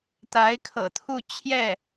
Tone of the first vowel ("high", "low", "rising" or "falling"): rising